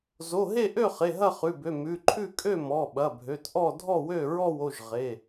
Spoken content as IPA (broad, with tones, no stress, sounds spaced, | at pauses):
z o˩˧˩ ɦ e˥˨ ʔ ø˥˨ χ e˩˧˩ ɦ ɐ˥˨ χ ʉ˩˧˩ b ø˩˧˩ m ʉ˩˧˩ ǃʰ ʉ˥˨ kʼ ø˥˨ m ɔ˩˧˩ ɓ ɐ˩˧˩ bʱ ø˩˧˩ t ʔ ɔ˥˨ dʱ ɔ˥˨ w ø˥˨ ɹ ɔ˥˨ w o˥˨ ʒ ʁ e˩˧˩